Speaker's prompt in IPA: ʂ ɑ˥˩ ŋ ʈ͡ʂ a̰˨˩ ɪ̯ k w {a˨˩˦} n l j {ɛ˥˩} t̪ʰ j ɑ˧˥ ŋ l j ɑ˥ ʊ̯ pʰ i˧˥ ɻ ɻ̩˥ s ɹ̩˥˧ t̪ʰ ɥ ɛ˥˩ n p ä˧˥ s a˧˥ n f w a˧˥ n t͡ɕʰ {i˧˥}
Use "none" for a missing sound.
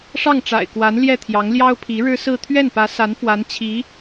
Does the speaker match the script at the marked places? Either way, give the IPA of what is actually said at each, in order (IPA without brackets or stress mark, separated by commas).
a˧˥, ɛ˥˩, i˧˥